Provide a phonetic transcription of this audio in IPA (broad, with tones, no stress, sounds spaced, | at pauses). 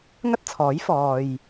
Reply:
ŋ ɐ˥ t̚ t͡sʰ ɔː˨˥ j f ɔː˨ j